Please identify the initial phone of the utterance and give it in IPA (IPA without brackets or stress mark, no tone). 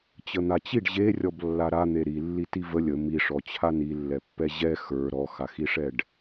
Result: t͡ɕ